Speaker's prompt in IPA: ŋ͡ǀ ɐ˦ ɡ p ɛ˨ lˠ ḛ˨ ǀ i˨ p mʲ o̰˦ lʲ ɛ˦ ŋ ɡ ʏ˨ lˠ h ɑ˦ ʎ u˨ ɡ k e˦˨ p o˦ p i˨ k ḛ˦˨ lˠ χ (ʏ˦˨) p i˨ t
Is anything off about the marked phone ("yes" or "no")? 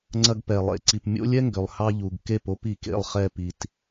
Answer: yes